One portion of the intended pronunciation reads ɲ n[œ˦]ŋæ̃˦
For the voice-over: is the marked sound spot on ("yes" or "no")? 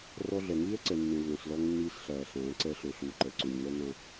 yes